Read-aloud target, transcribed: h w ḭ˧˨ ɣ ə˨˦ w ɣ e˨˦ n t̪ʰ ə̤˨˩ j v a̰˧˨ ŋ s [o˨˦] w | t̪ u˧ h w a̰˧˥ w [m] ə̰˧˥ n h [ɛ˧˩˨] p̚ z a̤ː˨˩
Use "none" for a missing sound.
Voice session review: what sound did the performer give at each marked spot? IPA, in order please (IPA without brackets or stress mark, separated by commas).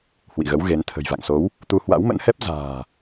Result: o˨˦, m, ɛ˦˥